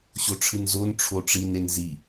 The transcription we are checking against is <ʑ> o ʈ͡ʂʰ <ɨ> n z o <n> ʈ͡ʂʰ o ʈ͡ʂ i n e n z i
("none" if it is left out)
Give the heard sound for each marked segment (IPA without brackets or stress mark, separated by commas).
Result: ɕ, ɨ, n